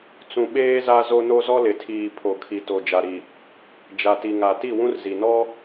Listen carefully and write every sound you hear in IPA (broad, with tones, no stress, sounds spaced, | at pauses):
t͡s ũ˨ ɓ eː˦ z a˦ z o˦ n o˦ z ɔ˦ l ɪ˨ tʰ iː˨ pʰ o˨ kʰ i˨ t o˨ d͡ʒ a˨ ɾ i˨ | d͡ʒ a˨ t i˨ ŋ a˨ t i˦˨ w ũ˦ r z i˨ n ɔ˦